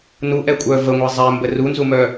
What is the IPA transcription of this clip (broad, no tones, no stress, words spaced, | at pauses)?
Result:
nuʔɛkʷʼœ vəŋʷɛ zˤɛmbə runzumœ